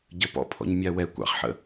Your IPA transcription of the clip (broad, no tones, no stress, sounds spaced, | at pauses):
ɟ ə p ɔ̰ pʰ ɔ̰ ɲ mʲ a w ɛ kʷ ɑ̰ χ ħ ə̰